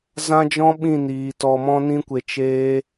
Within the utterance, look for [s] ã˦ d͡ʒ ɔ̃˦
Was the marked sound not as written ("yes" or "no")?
yes